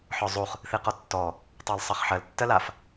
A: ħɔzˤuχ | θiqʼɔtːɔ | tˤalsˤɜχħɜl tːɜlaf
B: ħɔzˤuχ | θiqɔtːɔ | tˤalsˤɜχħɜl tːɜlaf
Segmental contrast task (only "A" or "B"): B